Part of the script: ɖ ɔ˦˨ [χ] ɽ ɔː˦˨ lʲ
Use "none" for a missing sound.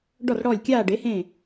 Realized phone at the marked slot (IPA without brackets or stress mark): r